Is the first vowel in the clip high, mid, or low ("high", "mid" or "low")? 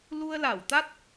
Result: high